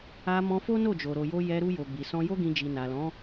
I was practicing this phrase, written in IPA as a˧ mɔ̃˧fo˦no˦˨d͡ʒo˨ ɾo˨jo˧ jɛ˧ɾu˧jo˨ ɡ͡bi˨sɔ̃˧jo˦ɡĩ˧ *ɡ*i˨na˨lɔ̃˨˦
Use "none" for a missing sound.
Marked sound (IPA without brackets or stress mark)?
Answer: d͡ʒ